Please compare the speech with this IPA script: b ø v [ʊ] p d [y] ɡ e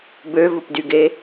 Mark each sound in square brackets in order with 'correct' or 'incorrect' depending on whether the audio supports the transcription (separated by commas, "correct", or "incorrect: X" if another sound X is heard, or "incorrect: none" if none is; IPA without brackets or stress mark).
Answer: correct, correct